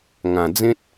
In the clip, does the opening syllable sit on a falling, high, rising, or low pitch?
low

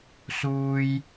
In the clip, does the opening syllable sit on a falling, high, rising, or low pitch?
low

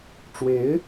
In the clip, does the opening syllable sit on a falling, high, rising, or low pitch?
rising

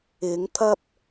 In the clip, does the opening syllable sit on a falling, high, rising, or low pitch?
rising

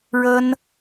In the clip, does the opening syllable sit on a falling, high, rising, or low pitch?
high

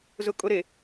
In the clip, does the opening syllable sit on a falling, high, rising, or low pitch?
high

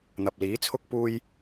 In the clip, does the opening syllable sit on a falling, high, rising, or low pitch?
low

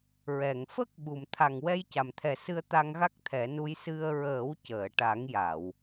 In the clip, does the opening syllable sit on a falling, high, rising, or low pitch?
low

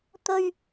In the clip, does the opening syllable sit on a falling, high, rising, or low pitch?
high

